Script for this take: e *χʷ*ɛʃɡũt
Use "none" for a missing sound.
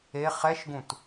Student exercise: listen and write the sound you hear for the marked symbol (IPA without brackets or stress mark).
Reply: χ